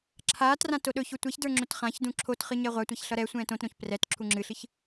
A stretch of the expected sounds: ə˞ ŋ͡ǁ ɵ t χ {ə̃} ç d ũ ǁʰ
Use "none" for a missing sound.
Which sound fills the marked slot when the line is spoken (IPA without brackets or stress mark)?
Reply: ã